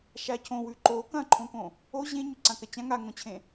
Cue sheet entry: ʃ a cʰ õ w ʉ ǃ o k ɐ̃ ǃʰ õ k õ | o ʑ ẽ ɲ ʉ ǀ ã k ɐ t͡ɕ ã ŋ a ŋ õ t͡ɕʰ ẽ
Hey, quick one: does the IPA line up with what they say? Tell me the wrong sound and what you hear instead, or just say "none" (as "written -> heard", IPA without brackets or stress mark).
none